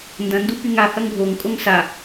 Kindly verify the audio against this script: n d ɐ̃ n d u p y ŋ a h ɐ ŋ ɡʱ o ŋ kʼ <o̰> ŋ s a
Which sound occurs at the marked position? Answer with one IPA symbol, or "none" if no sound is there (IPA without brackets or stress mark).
o